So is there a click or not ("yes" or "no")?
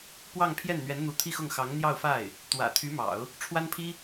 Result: no